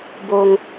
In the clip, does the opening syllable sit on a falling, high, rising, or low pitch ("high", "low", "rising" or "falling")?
low